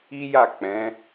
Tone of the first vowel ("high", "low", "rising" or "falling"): high